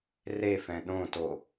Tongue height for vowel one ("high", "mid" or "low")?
mid